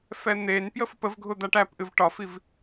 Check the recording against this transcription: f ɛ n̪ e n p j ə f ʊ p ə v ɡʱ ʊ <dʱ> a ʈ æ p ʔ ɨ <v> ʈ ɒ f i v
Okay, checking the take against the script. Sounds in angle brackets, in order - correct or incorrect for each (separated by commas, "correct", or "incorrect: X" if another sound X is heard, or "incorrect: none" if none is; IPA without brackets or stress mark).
incorrect: d̪, correct